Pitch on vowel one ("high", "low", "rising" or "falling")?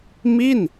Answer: falling